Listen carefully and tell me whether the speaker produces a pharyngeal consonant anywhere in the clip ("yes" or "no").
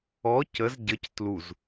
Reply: no